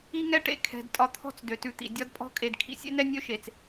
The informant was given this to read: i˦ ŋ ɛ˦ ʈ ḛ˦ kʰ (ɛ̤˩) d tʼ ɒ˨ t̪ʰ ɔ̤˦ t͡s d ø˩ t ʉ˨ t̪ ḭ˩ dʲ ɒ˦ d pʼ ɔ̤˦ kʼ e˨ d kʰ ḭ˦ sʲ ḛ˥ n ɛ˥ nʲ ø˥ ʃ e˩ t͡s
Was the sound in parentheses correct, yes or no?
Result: yes